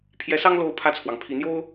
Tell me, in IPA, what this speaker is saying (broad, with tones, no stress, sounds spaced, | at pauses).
pʰ j ɛ˧˥ s ɑ˥ ŋ l o˧˥ ʊ̯ pʰ ä˥˩ t͡sʰ w ɑ˩ ŋ pʰ i˧˥ n̪ j o˥ ʊ̯